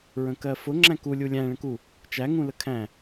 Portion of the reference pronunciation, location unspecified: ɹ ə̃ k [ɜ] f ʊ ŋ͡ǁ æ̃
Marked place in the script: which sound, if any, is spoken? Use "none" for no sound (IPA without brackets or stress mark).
ɜ